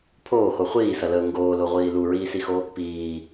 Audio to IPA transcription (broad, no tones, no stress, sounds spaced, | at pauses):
pʰ oː x o χʷ iː s ɐ l əː ŋ ɡ oː l o ʁʷ iː l u ɹ iː s i x o | p iː